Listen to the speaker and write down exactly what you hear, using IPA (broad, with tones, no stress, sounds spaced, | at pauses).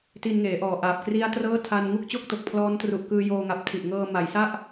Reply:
t i˧ n ŋ eː˩˦ ʔ ɔː˨˩ ʔ aː˨˩ p̚ k r i˦˥ a̯ t r ɤː˥˩ tʰ a˧ n ŋ u˥˩ k̚ t͡ɕ o˥˩ k̚ t o˨˩ k̚ pʰ l ɔː˦˥ n t r u˨˩ ʔ k ɯː˧ j oː˧ ŋ a˨˩ p̚ tʰ i˨˩ ʔ ŋ ɤː˧ m a˩˦ j s a˥˩ ʔ